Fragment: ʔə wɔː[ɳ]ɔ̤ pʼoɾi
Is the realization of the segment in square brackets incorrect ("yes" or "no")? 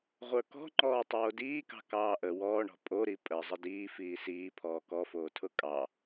no